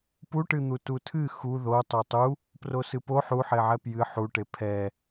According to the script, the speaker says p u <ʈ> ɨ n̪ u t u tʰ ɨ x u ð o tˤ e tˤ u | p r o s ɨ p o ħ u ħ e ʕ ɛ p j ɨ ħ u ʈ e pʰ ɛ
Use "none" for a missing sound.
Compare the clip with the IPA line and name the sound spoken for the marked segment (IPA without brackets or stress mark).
ʈ